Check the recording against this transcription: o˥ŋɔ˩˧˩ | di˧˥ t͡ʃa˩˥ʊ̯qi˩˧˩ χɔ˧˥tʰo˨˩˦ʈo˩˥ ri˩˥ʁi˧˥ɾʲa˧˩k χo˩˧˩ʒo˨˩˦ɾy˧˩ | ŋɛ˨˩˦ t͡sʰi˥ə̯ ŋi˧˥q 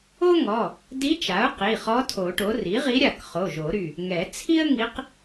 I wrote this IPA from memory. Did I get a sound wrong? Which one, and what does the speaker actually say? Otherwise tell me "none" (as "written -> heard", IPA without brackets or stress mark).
none